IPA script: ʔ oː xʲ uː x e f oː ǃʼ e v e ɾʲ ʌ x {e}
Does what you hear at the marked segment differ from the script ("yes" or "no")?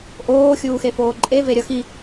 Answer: yes